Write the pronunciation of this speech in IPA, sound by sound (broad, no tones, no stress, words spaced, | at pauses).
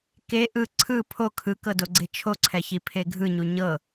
ke ʔɯ ǀʰɯ pʰo kʰɯkɤdoɡ͡ǀe t͡ʃʰoǀʰɛçi pʰeɡʱɯɲu ɲɤ